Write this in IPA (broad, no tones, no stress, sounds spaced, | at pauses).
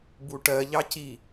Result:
b u ʈ ɜ ʎ ɑ c i